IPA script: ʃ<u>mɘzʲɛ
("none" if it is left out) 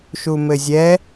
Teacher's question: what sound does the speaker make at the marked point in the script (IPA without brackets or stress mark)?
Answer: u